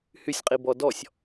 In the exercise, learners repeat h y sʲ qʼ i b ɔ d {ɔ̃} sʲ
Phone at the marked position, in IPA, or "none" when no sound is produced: ɔ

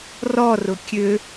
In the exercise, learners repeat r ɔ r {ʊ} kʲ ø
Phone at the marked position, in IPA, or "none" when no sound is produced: ʊ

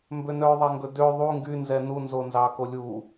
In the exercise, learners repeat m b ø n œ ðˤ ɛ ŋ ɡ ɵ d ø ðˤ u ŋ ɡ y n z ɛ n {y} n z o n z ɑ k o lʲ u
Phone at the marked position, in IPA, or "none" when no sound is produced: u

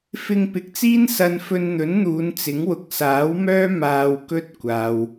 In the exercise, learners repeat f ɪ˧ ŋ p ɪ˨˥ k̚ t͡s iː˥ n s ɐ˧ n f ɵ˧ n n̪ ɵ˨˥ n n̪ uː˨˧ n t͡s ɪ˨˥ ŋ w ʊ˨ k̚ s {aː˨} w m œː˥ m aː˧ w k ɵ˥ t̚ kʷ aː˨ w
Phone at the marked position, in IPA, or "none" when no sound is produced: aː˨˥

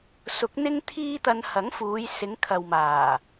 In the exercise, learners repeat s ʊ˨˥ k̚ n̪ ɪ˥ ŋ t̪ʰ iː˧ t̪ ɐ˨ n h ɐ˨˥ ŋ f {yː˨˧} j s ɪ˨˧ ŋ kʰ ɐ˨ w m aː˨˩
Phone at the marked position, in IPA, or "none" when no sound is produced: uː˨˧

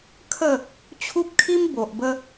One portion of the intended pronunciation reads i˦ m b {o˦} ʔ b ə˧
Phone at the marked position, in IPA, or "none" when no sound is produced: o˨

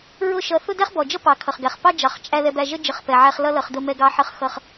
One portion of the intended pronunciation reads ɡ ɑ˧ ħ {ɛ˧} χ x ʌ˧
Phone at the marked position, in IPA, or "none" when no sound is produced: ə˧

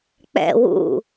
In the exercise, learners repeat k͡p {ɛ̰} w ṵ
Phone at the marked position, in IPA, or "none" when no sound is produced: ɛ̰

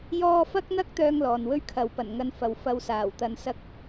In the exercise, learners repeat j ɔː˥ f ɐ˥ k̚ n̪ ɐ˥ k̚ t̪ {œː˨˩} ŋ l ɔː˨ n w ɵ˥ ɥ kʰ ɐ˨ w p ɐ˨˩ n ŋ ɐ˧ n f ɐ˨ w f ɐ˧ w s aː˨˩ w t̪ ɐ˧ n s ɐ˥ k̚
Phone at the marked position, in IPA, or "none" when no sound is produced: œː˥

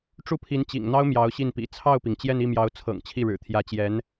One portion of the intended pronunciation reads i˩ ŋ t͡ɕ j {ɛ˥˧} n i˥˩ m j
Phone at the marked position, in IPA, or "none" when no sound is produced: ɛ˥˧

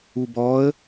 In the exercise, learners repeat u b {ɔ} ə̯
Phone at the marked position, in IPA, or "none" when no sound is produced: ɔ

